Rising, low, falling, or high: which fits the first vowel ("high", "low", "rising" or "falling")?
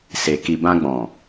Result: low